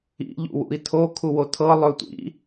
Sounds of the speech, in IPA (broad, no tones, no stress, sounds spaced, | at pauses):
ḭ ʎ ṵ w ṵ i̯ tʰ o kʰ u w o tʰ ɤ lˠ ɵ tʷ ḭ